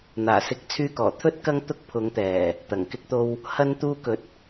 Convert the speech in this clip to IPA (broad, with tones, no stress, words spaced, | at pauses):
n̪aː˨˩sɪ˧k̚ t͡sʰyː˧kɔː˨˩t̪ʰɵ˥t̚ kɐ˥ŋ t̪ʊ˥k̚pʰʊ˨˧ŋt̪ɛː˨˩ | t̪ɐ˨˩ŋkɪ˧k̚t̪o˧w | hɐ˧nt̪uː˧kɵ˨˥t̚